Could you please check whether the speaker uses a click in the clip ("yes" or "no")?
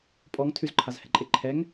yes